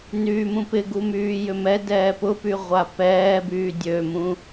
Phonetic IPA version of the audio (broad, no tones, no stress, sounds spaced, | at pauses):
n yː m ũ p ɪ ɡ u m yː j ʏ m ɛ d ɛː p ʊ p y ʁʷ a p ɛː b yː dʲ ø m ũ